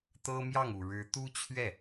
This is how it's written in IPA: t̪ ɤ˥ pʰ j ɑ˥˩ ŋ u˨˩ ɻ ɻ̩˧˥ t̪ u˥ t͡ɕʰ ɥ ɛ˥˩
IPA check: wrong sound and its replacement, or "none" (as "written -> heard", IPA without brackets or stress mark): pʰ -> m